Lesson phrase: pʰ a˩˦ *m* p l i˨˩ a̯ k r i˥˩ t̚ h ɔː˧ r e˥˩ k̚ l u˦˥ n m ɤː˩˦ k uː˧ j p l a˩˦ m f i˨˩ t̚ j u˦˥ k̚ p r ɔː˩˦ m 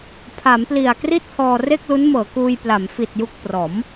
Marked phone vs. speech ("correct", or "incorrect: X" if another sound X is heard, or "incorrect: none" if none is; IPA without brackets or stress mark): correct